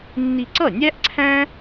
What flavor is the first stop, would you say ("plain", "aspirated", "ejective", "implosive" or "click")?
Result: click